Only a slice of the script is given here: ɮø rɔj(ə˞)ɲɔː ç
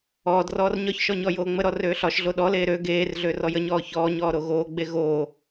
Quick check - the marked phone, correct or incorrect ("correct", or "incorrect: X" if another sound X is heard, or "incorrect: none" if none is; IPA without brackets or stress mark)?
incorrect: ə